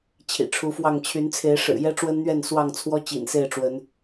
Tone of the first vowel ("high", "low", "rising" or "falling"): low